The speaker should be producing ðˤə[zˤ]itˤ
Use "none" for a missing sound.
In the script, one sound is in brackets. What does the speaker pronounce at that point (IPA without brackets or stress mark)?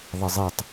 zˤ